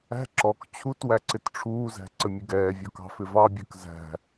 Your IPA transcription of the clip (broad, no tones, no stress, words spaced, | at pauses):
æ̤ ǁɔk t͡ɕʰutwæ ǀɪtʈ͡ʂʰuːzæ̤ ǀəmʲʊɡɛːvʲɔ kɑ̤fɪvɑbʲə˞k zæ̤